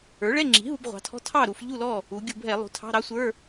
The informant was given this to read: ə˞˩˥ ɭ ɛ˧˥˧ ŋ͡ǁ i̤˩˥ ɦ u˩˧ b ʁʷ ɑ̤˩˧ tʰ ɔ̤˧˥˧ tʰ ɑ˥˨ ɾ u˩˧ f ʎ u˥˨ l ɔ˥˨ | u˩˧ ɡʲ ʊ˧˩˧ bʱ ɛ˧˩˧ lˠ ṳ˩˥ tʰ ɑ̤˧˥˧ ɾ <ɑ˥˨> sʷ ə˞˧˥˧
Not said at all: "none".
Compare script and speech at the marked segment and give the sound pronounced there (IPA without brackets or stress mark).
ɑ˦˥